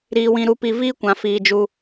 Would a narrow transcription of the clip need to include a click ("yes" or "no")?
no